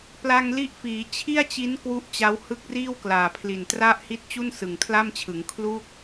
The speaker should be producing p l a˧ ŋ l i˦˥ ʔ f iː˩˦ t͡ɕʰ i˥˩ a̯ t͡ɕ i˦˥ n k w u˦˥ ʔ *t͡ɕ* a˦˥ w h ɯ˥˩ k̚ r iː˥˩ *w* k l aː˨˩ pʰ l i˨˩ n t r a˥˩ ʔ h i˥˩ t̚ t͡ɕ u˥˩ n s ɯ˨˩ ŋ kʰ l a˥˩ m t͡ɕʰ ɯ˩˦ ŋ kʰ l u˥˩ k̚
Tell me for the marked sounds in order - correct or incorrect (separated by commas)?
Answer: correct, correct